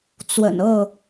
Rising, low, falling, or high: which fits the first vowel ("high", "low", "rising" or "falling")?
low